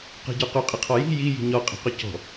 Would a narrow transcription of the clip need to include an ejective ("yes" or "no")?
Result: yes